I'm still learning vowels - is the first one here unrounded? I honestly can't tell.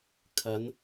yes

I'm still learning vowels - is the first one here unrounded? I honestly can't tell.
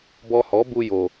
no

